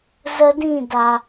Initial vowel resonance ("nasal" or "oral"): oral